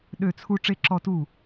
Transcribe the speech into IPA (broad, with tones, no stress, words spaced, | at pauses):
ɗø˥˧t͡sʰu˥ ʈ͡ʂe˥ǁɔ˥˧tu˥˩